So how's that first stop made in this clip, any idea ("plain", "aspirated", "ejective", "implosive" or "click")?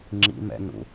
click